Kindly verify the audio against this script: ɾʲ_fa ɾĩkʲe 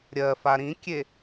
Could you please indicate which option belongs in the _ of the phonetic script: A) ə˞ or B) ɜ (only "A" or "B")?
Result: B